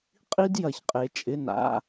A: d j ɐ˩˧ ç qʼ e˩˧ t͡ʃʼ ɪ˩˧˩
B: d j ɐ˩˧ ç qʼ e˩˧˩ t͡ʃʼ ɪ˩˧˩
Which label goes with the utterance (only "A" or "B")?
A